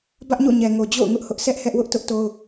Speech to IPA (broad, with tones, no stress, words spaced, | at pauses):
bä˦ʔɲo̰˦˨ɲɛ˨ŋo˨ d͡ʑo̰˦˨ʊ̯ŋʊ˦ʔ hʊ˦ʔ sʰɛ˦ʔ hɛ˦ʔwʊ˦ʔ tʊ˦ʔto˦ʊ̯